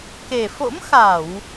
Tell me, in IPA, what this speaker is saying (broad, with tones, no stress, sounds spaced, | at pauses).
k e˨˩ f o̰˧˥ m x a˧˩˨ w